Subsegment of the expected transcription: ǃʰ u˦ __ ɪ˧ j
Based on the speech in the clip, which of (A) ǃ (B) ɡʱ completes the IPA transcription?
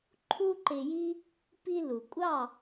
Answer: A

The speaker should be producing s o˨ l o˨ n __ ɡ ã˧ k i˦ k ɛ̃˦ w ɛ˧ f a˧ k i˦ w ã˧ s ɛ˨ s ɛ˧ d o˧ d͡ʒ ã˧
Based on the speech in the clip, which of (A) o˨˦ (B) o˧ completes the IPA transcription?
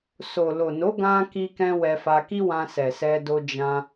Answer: A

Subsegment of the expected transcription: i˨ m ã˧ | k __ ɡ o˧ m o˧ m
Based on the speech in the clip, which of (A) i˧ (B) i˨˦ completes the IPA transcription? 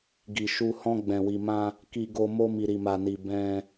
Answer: A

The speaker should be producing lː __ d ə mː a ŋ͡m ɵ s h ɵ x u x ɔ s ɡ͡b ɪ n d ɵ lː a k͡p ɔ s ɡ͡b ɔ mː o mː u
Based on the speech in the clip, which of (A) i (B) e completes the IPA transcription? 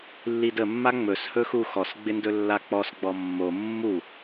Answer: A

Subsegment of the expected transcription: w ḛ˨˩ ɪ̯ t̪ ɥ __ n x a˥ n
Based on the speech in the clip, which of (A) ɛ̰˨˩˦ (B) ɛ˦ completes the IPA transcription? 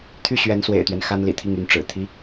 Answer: B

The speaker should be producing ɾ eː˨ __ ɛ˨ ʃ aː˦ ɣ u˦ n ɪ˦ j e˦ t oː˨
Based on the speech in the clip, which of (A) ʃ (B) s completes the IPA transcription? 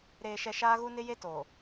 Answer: A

